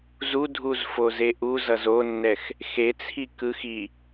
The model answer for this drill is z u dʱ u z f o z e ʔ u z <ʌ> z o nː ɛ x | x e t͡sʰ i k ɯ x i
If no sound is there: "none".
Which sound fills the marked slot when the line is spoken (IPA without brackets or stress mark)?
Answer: ʌ